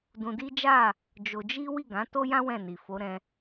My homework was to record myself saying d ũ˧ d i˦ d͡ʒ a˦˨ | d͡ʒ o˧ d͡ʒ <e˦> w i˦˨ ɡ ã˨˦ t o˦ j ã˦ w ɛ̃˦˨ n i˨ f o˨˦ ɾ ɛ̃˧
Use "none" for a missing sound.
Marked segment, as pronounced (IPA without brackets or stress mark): i˦